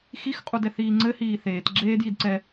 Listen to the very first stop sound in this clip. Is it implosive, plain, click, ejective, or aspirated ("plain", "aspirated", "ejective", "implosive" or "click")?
ejective